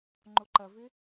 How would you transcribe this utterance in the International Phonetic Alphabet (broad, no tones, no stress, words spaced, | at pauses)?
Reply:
ŋ͡ǃoǃɐvɪ